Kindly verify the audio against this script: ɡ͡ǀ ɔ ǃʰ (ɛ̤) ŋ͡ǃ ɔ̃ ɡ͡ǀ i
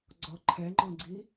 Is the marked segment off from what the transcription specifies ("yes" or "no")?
yes